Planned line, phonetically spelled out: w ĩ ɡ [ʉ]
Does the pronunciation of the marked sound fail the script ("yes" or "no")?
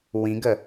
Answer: yes